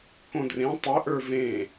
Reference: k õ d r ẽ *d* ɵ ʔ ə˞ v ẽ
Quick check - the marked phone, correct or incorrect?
incorrect